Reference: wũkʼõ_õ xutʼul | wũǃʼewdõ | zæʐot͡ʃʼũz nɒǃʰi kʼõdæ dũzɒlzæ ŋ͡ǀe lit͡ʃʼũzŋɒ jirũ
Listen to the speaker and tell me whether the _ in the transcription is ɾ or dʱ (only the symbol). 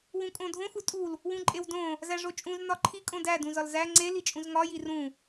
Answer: dʱ